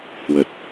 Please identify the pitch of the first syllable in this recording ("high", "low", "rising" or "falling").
low